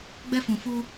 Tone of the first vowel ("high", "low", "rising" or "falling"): high